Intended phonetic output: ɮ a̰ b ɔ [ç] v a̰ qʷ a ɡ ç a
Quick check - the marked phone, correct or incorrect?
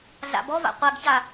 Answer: incorrect